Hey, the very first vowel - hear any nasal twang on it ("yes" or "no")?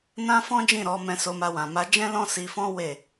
yes